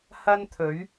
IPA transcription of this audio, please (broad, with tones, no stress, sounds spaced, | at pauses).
h ɐ˥ n t̪ʰ ɵ˨˥ ɥ